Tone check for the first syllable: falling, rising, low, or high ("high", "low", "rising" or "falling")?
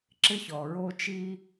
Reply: high